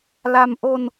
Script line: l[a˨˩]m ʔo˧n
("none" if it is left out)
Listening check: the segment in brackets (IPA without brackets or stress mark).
a˧